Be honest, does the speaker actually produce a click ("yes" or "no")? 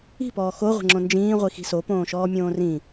yes